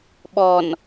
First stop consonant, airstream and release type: implosive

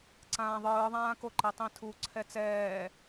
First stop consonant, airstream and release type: click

